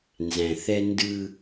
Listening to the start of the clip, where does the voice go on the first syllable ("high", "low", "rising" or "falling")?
low